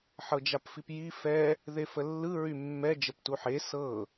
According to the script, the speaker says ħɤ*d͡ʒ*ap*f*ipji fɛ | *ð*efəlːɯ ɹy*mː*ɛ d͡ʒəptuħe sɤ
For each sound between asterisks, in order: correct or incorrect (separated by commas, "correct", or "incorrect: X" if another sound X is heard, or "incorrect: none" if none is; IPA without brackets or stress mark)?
correct, correct, correct, correct